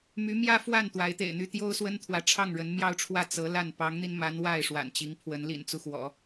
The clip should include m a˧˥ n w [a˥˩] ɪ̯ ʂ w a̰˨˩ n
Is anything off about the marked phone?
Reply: no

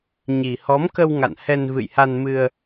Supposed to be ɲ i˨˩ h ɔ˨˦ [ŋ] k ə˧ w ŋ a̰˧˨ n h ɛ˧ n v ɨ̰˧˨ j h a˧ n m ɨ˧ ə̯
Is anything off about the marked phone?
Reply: yes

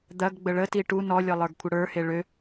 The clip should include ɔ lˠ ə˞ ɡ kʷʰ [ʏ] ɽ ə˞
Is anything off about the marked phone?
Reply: yes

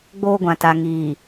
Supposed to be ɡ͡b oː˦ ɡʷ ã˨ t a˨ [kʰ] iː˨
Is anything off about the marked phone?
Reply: yes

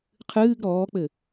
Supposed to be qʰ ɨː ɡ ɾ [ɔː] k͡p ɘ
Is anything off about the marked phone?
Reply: no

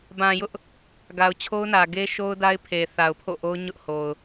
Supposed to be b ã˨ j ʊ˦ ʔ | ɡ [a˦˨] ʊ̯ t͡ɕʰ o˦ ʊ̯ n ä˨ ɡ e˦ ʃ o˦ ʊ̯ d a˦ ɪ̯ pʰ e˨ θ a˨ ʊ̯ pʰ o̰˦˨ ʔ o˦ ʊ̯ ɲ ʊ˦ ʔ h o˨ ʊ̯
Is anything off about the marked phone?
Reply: yes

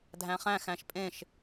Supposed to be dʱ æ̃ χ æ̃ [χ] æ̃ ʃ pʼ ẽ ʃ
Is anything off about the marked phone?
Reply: yes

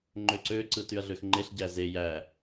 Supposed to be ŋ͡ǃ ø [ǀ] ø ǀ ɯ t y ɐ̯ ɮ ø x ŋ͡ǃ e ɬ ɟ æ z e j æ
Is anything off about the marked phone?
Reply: no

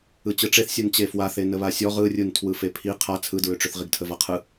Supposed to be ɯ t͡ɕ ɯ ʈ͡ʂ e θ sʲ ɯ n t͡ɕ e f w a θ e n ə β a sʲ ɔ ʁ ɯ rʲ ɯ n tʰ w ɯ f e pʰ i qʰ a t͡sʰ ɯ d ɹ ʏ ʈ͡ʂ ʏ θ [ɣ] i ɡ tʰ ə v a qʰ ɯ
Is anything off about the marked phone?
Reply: yes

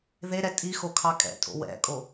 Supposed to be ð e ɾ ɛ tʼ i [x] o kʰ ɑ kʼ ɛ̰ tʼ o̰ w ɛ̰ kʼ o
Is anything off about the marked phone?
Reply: no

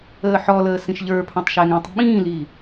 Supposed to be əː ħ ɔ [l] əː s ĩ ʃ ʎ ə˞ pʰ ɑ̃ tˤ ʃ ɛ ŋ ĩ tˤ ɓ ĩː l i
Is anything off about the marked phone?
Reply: no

